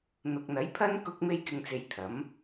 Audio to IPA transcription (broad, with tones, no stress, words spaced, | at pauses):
n̪ʊ˨k̚n̪ɐ˨˥jpʰɐ˥n kʊ˧k̚me˧jkɪ˨ŋt͡se˨j t̪ʰɐ˨˥m